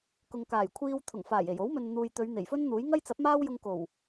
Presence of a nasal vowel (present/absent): absent